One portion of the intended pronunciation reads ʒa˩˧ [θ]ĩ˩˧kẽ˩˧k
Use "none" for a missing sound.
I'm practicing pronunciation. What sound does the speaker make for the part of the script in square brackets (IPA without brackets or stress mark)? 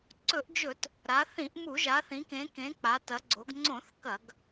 θ